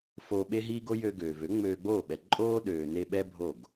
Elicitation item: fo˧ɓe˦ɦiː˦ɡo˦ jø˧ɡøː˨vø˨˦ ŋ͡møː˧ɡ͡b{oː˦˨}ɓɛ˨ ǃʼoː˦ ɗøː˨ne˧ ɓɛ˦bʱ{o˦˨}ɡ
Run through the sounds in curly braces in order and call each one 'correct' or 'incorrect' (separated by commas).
correct, correct